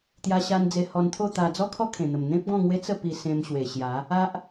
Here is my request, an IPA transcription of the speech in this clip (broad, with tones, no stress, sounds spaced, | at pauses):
t̪ j a˧ ɕ a˧ n d͡z e˧ h ɔ˧ n t̪ʰ o˥˧ t̪ a˧ d͡z ɔ˦ kʰ ɔ˦ kʰ ẽ˨˩ n̪ ə˨˩ m n̪ ẽ˦ p̚ ɡ ɔ̃˥˧ ŋ w e˦ t͡s ə˥˧ p i˧ s ẽ˧ m ɕ w e˨˩ ɕ j a˨˦ | a˦ ʔ